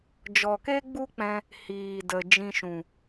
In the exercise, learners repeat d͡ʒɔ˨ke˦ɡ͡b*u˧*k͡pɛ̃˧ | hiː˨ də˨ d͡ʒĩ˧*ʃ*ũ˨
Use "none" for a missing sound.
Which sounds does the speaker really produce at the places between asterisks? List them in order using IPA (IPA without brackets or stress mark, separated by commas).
u˦, ʃ